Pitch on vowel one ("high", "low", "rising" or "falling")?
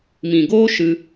low